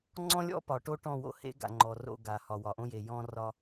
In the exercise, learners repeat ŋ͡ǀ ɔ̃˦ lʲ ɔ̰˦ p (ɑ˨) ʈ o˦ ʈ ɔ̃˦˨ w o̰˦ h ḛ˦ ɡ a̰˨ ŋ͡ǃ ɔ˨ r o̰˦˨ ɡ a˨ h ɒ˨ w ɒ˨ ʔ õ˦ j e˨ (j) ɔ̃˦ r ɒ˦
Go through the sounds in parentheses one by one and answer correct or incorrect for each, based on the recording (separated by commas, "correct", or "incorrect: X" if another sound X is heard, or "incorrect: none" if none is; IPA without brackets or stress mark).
incorrect: ɒ˨, correct